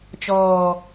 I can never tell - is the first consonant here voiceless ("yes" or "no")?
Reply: yes